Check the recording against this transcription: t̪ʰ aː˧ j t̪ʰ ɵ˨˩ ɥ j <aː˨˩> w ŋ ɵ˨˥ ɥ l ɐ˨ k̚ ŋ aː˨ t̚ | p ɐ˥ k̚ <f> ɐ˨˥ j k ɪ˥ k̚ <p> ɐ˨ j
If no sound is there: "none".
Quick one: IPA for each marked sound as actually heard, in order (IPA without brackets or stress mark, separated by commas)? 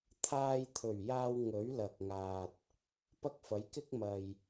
aː˧, f, m